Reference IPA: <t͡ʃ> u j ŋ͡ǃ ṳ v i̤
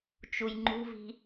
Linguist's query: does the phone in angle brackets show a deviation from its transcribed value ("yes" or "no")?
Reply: no